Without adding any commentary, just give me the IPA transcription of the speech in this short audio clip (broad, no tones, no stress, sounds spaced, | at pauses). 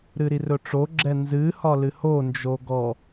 ɾ ɨ ɾ i r ɵ ʈ͡ʂ o ɡ͡ǁ ɛ n z ɨ h ɒ l ɨ h o n d͡ʒ o ɡ ɔ